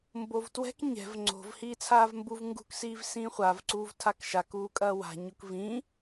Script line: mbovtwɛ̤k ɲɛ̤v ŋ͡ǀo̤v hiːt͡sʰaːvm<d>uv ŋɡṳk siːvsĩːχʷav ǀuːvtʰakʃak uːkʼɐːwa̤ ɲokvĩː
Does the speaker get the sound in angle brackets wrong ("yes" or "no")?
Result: yes